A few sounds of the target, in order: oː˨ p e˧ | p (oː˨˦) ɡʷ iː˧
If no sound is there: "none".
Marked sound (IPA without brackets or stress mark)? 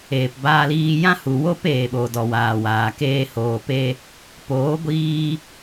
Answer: oː˨˦